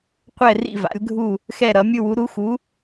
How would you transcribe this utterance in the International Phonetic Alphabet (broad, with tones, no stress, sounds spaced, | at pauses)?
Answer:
qʷ ɛ˦˨ r ḭ˦˨ v a̰˨˦ lʲ ɡʱ u˦˨ | x ɛ˦˨ ɾ ʌ˨˦ mʲ ɯ˦˨ w u˨˦ ɾ u˨˦ x u˨˦